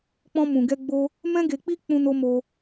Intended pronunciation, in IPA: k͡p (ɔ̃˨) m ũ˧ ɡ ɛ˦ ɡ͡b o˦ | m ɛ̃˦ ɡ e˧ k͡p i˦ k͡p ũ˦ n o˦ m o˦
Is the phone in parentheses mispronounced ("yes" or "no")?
yes